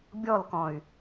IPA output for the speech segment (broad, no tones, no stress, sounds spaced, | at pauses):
bʲ ɔ l k ɔ̃ y̯